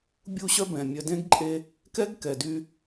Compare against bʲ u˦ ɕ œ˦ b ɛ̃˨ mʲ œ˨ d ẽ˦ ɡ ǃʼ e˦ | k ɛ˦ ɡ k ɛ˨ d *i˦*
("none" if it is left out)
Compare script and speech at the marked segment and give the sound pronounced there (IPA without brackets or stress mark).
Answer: y˦